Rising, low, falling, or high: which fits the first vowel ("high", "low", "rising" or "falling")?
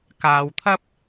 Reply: low